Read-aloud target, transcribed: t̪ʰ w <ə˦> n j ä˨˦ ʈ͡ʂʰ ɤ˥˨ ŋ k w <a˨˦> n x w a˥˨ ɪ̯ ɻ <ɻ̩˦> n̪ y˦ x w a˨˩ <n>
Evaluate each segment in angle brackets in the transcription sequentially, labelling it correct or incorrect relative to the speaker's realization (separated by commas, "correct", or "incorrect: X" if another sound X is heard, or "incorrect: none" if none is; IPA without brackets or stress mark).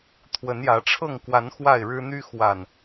incorrect: ə˨˦, correct, correct, correct